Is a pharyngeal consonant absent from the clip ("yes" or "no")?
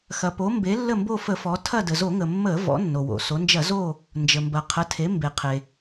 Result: yes